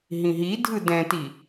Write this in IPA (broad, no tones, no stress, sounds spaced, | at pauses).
ɦ ĩ ɦ i dʱ ɯ d ɛ̃ t i